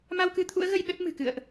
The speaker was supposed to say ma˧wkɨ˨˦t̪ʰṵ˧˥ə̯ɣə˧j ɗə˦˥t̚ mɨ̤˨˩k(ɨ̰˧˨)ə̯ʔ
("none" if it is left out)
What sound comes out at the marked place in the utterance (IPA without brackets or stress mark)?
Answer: ɨ̰˧˨